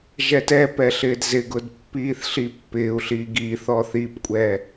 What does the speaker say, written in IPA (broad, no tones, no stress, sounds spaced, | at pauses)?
ʒ ɛ t ɛ p ɛ ɬ ɪː d z ɪ ɡ ʊ d pː iː θ ɬ i pː ɪː u̯ ɬ iː ɡ i θ ɔ θ i p kʷʼ ɛ